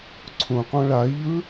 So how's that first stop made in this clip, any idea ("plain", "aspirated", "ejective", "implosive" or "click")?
click